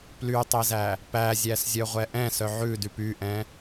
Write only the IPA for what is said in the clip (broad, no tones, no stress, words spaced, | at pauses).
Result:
plytˤezæ | pæzʲæszʲœʁʷɛ ʔɛ̃sœ ʕʉdyp yʔɛ̃